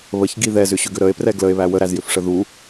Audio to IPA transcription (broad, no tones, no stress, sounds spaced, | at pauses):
β ə ç ɡ i ð ɛ z ʏ ɕ ʏ ɡ ʏ ɾ ə e̯ p r ɛ ɡ l ə e̯ β æ w ə ɾ æ z j ʏ f ʂ ə ð u